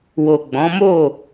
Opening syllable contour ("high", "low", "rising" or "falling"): low